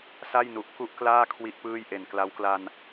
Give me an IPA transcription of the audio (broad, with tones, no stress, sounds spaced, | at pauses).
s a˥˩ j n u˨˩ ʔ k u˥˩ ʔ k l aː˥˩ kʰ w i˥˩ ʔ p ɯː˥˩ j ʔ e˨˩ n k l a˦˥ w k l a˧ n